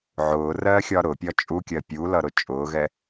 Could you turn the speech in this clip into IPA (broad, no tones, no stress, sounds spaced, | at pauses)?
ʕ ʊː r ɜː xʲ ɒ ɾ ʊ pʲ ɒ t͡ʃʼ u kʲ ɜ pʲ u l ʌ ɾ ʊ t͡ʃʼ ʊː ɣ ɛ